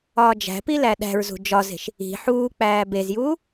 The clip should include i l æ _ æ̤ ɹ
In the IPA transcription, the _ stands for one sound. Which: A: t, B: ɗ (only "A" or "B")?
B